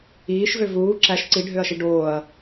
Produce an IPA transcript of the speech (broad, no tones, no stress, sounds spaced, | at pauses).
iː ʃ v ø v uː ǁ æ ʃ ǀ i ɖʱ ø ɐ̯ ʃ i ɖ oː ɐ̯